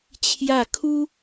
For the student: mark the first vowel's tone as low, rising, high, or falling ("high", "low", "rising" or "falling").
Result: falling